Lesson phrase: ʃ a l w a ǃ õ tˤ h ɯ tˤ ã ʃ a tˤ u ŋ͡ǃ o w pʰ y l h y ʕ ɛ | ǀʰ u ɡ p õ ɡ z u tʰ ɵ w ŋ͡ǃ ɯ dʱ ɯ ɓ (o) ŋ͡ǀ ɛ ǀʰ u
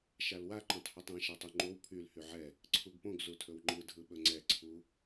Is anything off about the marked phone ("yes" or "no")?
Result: yes